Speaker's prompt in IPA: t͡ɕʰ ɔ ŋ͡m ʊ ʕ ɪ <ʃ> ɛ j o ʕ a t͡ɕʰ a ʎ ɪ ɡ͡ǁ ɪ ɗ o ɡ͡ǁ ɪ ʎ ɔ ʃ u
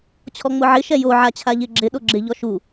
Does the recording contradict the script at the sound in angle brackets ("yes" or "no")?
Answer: no